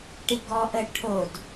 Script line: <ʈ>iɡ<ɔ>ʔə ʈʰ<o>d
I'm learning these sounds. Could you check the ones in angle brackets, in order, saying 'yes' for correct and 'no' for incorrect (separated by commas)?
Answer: yes, yes, yes